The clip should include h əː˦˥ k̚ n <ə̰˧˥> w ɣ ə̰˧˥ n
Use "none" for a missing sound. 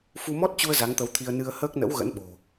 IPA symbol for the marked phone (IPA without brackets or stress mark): ə̰˧˥